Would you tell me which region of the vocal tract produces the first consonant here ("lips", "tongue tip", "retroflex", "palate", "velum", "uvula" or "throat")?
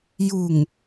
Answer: palate